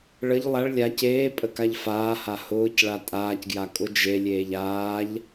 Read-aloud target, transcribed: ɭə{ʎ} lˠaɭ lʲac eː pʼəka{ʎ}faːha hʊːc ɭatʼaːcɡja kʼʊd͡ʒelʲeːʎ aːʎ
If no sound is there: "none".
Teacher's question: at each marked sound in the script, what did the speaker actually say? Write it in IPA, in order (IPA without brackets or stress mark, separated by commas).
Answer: ʎ, ʎ